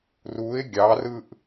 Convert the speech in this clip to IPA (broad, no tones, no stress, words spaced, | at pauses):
ruɪ̯ ɡʲɑrɯʔ